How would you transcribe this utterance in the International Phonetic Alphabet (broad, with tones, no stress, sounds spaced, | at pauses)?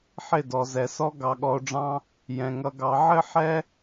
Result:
ħ ɪ˦˨ d ɔ˨ z ɛ˨ s ɔ˦ ɡ ɑ˧ ɠ ɔ˧ o̯ ɖ͡ʐ ɑ̃˦ | j ɛ̃˨ ŋ ʌ˧ ɡ ɑ˧ ʕ ɘ˦ ħ ɛ˦